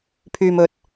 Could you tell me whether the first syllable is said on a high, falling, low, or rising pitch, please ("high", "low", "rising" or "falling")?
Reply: low